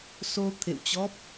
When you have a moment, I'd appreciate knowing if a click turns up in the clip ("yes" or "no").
no